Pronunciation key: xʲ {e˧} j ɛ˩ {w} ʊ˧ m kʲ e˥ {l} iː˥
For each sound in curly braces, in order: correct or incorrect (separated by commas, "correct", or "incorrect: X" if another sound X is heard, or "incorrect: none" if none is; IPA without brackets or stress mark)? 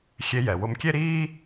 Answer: correct, correct, incorrect: ɾ